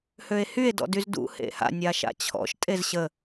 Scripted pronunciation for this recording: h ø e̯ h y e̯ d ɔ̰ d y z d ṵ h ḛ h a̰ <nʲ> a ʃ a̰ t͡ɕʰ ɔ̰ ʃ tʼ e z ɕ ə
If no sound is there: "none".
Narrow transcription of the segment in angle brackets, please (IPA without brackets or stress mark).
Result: nʲ